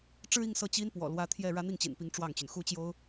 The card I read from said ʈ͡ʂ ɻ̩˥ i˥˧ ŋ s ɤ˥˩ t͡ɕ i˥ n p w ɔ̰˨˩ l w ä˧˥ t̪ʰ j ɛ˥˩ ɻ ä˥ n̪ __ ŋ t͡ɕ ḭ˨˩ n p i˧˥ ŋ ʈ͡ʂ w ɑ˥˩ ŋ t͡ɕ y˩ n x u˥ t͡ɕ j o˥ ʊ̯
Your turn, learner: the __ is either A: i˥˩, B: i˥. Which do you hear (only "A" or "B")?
A